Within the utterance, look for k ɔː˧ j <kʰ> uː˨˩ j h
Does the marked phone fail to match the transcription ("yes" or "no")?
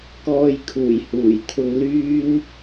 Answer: no